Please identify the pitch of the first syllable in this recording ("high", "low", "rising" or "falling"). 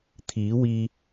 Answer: rising